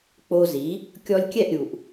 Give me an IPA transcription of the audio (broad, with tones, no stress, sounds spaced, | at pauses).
k͡p o˧ z i˩˥ | kʲ ɔ˧ lʲ kʲ ɛ˥˩ ʔ ɾʲ u˩ ʔ